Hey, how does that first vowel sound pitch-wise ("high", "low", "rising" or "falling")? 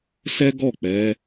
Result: high